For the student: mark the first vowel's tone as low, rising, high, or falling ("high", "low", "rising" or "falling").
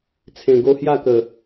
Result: low